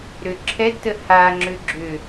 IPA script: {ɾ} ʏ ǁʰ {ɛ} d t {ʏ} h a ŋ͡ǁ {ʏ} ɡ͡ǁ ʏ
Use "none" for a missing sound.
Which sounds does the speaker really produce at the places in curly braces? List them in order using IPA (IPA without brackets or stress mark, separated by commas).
ɾ, ɛ, ə, ʏ